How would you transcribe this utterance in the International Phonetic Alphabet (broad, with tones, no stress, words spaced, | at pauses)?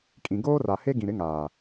kʼĩ˨ ɡoː˦ra˨ he˦ɡĩ˨ ɾɪ˨˦ŋaː˨